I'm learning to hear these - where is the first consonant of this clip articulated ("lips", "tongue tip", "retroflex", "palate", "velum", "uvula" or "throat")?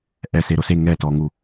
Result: throat